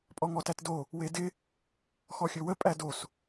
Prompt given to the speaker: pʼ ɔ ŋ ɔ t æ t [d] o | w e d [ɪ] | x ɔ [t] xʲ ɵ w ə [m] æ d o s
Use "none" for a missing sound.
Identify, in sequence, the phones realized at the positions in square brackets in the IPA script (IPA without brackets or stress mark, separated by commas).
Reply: d, ɪ, none, pʼ